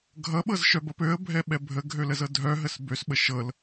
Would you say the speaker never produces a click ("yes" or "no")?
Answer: yes